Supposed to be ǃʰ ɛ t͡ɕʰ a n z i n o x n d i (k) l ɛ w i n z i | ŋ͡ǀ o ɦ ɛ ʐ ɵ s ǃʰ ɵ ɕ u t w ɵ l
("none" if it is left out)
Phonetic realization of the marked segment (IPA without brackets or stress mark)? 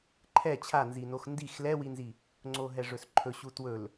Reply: x